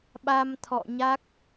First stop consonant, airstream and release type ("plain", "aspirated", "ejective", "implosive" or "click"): implosive